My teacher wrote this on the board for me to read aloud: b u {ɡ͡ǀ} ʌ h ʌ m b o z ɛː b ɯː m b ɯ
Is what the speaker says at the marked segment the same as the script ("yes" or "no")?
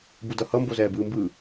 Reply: no